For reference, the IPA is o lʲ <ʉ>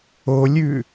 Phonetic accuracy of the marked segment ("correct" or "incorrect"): correct